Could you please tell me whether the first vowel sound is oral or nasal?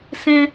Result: nasal